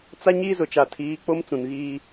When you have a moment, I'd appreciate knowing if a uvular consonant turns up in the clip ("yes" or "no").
no